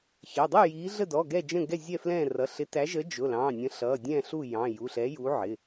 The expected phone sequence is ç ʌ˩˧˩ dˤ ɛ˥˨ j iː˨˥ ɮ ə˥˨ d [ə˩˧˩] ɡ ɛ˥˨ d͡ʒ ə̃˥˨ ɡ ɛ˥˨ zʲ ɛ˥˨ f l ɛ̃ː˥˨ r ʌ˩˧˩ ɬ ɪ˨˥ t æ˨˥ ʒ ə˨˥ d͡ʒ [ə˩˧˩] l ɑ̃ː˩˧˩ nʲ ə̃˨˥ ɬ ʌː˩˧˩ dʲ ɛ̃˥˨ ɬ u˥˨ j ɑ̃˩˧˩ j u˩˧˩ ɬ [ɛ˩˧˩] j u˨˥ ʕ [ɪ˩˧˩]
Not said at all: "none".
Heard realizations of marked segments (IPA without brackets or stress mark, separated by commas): ɔ˩˧˩, ʊ˩˧˩, ɛ˨˥, ɪ˩˧˩